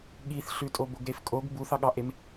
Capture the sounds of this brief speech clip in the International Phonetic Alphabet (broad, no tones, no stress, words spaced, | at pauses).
ɠiθɬʉtʼo boɡɾefkʼoɡ buθɑɠɑʔem